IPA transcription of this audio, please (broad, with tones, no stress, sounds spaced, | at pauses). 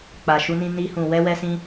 k͡p a˨ ʃ u˧ n ĩ˧ n i˧ h ũ˨ w ɛ˧ w ɛ˧ s ĩ˧